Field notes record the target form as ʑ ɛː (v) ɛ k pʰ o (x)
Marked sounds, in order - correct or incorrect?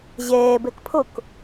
incorrect: b, incorrect: k

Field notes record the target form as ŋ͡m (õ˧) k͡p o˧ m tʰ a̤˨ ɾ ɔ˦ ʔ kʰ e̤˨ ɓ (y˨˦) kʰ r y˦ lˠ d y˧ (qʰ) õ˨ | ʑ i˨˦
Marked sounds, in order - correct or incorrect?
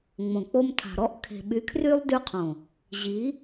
incorrect: õ˨, correct, correct

